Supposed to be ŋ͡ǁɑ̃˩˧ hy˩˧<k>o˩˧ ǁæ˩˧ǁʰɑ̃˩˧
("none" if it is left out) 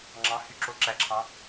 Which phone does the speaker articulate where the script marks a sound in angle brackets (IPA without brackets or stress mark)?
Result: ǁ